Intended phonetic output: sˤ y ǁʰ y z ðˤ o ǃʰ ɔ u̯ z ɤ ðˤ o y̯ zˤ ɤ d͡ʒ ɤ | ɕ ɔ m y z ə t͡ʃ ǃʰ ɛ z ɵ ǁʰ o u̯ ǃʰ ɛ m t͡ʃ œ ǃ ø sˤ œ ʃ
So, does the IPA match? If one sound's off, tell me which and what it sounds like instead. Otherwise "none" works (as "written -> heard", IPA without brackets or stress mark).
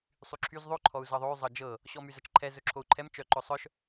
ø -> ɵ